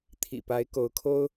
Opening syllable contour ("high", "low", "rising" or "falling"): low